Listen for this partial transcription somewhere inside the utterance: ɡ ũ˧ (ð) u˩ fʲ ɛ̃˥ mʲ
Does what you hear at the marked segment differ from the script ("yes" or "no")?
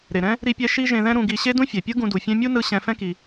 yes